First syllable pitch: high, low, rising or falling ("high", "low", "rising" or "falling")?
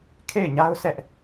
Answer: falling